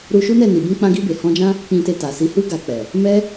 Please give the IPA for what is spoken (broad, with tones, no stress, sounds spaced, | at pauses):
ɾ u˧ ʃ u˦ n ɛ˦˨ n i˨ b ũ˧ k͡p ã˧ ɡ i˧ b e˨ h ɔ̃˧ d͡ʒ ã˦ | k͡p ĩ˧ t e˧ t a˨ s i˨˦ h u˦ ɡ a˧ k͡p ɛ˨ | m ɛ˦